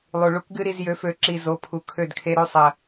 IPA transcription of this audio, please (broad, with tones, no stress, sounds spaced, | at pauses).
lˠ u˨ ɭ u˦ k ɡ ɨ˦ ɾ i˧ z j ø˨˦ f ø˨˦ ǁ i˨ z o˨˦ pʰ u˨ kʰ ø˦˨ d kʰ e˧ ɾ ø˧ sˤ ɐ˨